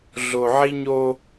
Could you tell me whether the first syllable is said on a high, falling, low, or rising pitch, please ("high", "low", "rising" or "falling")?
low